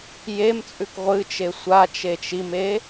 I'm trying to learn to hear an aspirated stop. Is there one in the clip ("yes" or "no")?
no